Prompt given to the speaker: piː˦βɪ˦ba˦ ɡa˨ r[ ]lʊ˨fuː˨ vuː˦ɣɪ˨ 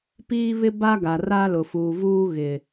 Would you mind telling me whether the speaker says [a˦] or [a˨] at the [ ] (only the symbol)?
a˦